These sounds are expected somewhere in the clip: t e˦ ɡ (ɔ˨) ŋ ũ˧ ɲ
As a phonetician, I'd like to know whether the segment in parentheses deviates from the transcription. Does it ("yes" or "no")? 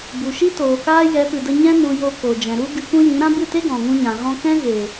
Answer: yes